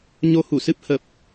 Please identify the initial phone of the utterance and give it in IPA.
ɲ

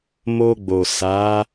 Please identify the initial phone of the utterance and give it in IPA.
m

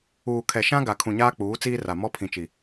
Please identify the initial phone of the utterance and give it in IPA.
uː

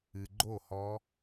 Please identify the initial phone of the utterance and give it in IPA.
ɨ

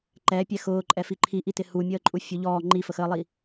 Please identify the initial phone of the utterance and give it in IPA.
ǃ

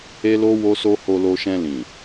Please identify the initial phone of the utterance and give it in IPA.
e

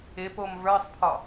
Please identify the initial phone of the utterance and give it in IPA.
ɪ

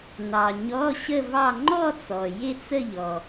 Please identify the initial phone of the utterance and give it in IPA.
n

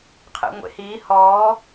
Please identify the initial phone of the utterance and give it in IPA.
qʰ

